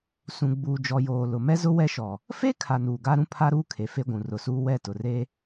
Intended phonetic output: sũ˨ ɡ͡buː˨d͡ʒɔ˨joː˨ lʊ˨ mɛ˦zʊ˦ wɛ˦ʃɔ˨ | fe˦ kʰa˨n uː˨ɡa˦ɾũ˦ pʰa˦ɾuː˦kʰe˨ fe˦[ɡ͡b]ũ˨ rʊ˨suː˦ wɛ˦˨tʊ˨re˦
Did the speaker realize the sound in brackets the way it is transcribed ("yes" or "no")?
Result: no